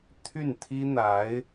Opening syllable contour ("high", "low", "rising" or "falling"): falling